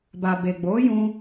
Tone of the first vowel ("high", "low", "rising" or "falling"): low